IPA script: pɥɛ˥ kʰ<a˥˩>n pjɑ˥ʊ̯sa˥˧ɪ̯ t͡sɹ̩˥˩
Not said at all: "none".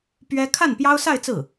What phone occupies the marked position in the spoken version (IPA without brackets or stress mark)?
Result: a˥˩